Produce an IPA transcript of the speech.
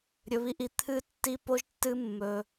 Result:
ɾʲɵ˧βi˧ʔi˧ t̪ʰɨ˧tːi˧po˧ʒtːɨ˧ mːɵ˧

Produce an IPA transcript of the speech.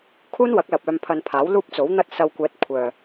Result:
kʰuː˥nwɐ˨˥k̚lɐ˨p̚ œː˧mpʰɐ˧n pʰaː˨˥wluː˥p̚t͡so˨˥wn̪ɐ˥t̚ sɐ˧wkʷɛː˨˥t̚ kʷʰœː˨

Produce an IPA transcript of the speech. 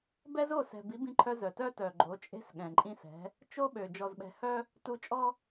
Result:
bɛ˦zo˦˨sɛ̤˨bi˨˦ bĩ˦ǃʰœ˦zœ˨ tœ˦tœ˨ɡ͡ǃo˨˦ t͡ʃʼe̤˦sɠɛ̃˨ǃʼĩ˦ sɛ̤˨˦ | t͡ʃo˦ɓø˨ d͡ʒɔ˨zɓɛ̤˨hœ˦ | tu˦ t͡ʃʼɔ˦

